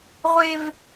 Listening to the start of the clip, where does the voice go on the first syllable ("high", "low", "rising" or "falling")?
low